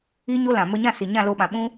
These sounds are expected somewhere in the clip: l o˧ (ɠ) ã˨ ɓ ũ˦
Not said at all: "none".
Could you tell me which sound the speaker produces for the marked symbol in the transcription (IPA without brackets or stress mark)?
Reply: ɓ